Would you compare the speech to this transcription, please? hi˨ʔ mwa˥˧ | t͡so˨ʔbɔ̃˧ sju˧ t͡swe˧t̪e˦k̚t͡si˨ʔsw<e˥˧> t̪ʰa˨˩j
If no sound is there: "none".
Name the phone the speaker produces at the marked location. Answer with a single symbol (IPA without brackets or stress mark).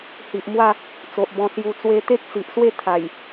e˥˧